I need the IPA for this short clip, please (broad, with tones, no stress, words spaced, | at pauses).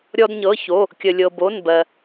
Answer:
ɾʲɔ˥dɲɤ˧˥˧ço˧˥˧ | kʲə˧lʲɤ˧bo˧˥˧nbɜ˧